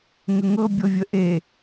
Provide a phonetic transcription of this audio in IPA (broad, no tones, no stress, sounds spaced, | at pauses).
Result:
ŋ ə ŋ ɤ bʲ ɤ vʲ ə ʔ e